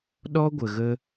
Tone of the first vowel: high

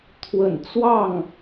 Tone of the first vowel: low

